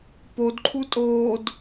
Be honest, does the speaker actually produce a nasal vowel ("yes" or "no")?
no